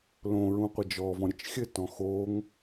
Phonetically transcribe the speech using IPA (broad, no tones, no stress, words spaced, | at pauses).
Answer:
lõɹũ qʷɘd͡ʒɔvɔ̃ ɾʲət͡ʃxʲɘtɔ̃ xoŋ